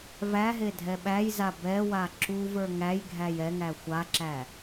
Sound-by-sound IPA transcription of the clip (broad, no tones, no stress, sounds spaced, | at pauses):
v æ ɦ e dʱ ɛ ɓ æ j z a b ɛ w a ǁ u v ə˞ ŋ æ j ɡʱ æ j ɛ ŋ æ xʷ a ǁ æ